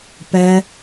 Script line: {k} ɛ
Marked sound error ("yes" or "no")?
yes